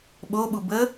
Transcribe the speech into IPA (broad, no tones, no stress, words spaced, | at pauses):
ɓoɓu bə